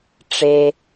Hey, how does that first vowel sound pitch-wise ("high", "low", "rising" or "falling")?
high